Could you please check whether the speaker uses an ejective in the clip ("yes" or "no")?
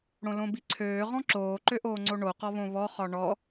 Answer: no